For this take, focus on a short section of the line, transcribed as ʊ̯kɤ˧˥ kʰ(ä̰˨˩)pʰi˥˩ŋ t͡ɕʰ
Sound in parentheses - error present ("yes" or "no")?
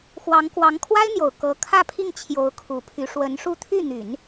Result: yes